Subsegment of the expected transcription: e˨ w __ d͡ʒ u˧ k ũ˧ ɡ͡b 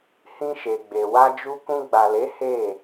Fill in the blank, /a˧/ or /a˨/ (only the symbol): a˧